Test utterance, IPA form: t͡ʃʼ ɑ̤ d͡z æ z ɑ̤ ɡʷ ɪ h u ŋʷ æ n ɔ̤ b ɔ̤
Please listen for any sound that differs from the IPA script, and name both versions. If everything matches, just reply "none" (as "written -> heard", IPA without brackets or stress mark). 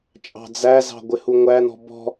none